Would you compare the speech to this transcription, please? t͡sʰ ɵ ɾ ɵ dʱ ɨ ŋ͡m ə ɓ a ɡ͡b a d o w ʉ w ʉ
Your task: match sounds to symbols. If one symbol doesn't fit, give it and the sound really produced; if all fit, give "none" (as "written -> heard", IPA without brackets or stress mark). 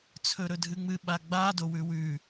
ə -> ɨ